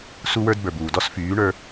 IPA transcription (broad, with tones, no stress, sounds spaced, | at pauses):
s u˦ w ə˞˦ d b ə˞˨ b uː˨ d ɔ˦ s f yː˨˦ ɳ ə˞˦